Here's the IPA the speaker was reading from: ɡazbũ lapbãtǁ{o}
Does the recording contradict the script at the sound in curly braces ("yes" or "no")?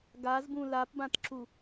yes